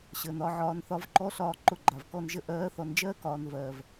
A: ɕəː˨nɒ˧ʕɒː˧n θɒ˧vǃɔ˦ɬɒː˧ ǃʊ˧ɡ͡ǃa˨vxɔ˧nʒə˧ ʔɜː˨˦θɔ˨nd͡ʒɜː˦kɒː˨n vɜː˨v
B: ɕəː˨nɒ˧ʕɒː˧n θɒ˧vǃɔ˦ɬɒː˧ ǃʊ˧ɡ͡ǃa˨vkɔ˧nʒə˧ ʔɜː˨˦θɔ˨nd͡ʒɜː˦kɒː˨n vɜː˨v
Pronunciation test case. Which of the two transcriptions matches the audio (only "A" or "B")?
B